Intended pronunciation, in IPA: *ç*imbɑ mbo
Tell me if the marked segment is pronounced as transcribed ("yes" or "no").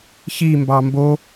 yes